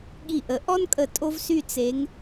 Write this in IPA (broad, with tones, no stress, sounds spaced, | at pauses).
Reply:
ɠ i˧˩ ʔ ə˨˩˦ ʔ ɔ˥ n kʼ ə˧˩ tʼ o˥ v s y˥˧ t͡s e˨˦ ŋ